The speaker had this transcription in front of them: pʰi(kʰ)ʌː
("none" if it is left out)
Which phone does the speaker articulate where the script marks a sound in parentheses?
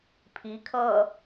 kʰ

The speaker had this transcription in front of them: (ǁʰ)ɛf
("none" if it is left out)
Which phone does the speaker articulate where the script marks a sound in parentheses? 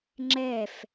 ŋ͡ǁ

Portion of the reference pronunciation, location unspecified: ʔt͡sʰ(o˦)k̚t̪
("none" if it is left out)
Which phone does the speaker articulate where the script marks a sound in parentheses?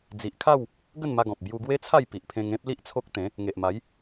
o˦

